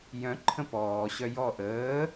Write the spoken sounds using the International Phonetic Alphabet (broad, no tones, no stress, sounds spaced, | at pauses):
j œ̃ ǃʰ ə̃ p ɔː ɕ œ j ɔ ʔ əː